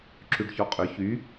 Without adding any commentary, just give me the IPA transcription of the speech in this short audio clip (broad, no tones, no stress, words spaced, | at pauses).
ǁyɖçɔqʼʏ çy